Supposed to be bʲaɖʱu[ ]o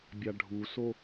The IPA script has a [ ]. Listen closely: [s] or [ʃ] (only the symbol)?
s